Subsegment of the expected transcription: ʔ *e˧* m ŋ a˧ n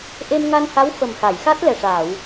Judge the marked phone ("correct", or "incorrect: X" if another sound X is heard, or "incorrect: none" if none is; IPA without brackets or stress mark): correct